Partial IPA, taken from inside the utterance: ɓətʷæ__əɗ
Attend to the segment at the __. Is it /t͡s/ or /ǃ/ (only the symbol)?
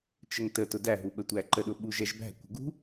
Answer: ǃ